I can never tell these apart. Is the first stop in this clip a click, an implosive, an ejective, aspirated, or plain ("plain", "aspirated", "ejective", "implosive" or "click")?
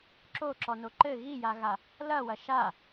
click